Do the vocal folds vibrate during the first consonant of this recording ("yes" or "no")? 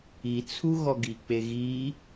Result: no